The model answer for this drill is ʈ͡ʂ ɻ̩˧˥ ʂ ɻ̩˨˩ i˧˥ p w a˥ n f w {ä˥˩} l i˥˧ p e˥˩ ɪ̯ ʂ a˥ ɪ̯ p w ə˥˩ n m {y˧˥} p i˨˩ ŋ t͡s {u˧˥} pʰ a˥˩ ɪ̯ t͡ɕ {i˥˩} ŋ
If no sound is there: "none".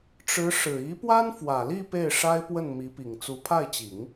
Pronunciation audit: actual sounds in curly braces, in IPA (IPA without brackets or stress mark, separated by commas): ä˨˩, i˧˥, u˧˥, i˨˩˦